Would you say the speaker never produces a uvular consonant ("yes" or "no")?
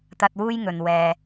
yes